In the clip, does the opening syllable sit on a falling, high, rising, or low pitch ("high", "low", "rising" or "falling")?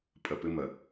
low